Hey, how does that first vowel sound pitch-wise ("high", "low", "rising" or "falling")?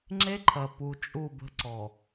high